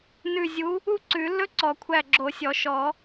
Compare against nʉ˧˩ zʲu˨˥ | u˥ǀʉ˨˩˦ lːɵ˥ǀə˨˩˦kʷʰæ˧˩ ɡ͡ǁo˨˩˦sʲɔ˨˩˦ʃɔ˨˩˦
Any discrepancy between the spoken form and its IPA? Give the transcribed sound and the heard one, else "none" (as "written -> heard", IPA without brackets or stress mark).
ə˨˩˦ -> ɔ˨˩˦